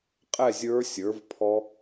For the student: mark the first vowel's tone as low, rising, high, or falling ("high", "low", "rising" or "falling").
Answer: falling